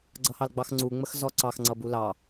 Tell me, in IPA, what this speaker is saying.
ɡ͡ǀ ʌ h ɑ l ɡ͡b ɑ x ŋ͡ǀ u ŋ͡m ə x z ɔ ǀ ɑ x ŋ͡ǀ ʌ b u l ɑ

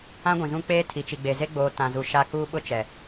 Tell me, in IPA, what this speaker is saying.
ã˦ ɡʷ ĩ˨ z ũ˦ k͡p eː˦ tʰ i˨ t͡ʃ i˨ ɡ͡b e˨ z e˦ ɡ͡b oː˨ t ã˨ z u˨ ʃ a˦ k uː˦ ɓ ʊ˦ t͡ʃ ɛ˨

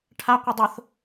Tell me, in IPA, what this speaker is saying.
ʈʰ a qʷ ə dˤ ʊ θ

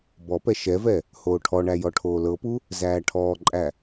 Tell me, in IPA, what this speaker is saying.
b ɔ p ɛ ʃ ɛ v ɛ | h oː ʈʰ ɔ ɳ æ j ɔ ʈʰ oː l ɤ p u | z æː ʈʰ ɔː ǃʼ æ

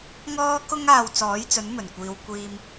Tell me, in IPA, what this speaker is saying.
ŋ ɔː˥ k ʊ˥ ŋ aː˧ w t͡s ɔː˨˥ j t͡s ɵ˨˥ n m ɵ˨˩ n kʷ iː˨˧ w kʷ iː˧ m

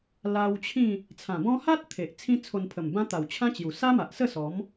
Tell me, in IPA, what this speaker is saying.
l a˧ w t͡ɕʰ ĩ˥˧ | t͡sʰ ã˨˩ b ɔ̃˦ h a˦ t̚ t̪ʰ e˨ ʔ t͡sʰ ĩ˦ t͡sʰ o˧ n pʰ ə˨˩ m b ã˦ t̪ a˨˩ w t͡ɕʰ ã˦ t͡ɕ j u˨˩ s a˦ m a˨ ʔ s ə˥˧ s ɔ˨˦ m

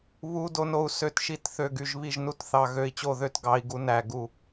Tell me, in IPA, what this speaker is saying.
β u˦˥ d o˦˥ n o˦˥ u̯ s ø˥˨ t ʃ i˥˨ t θ ø˥˨ ɡ y˥˨ ʒ β i˥˨ ʒ n u˦˥ t θ ɑ˥˨ ɣ ø˦˥ i̯ t͡ɕ o˥˨ ð ø˦˥ t ɡ ɑ˦˥ i̯ ɡ u˦˥ n æ˥˨ ɡ u˥˨

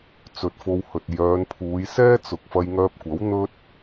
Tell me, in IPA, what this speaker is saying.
t͡s ɵ˨ t̚ f o˧ w h ɵ˨ t̚ j œː˨˧ n pʰ uː˨˧ j s ɛː˥ t͡s ʊ˨ k̚ f ɐ˧ j ŋ œː˧ p̚ kʷ ɐ˨˥ w n̪ ɵ˥ t̚

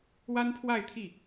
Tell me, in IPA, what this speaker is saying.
w a˥ n pʰ w a˥˧ ɪ̯ t̪ʰ i˥˩

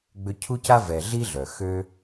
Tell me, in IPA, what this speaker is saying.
ɡ͡b ø˧ cʰ u˦ c a˦ v ɛ˨ ɮ i˦ ɮ œ˨ x ø˦

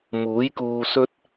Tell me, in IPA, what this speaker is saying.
m uː˨˥ j k uː˧ s ɵ˥ t̚

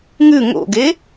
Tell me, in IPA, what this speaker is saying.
ŋ ʉ ŋ o̰ ɡ e

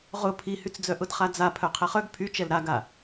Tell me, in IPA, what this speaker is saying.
ʁ ʊ pʰ i h y t͡s d͡z œ ʔ ʊ d χ a d͡z a pʰ œ qʰ ɛ χ œ ɡ pʰ y t͡ʃ ɛ l ɾ a ɡ a

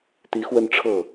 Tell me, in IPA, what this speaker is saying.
t̪ i˧˥ x w ə˥˧ n ʈ͡ʂʰ ɤ˥˩

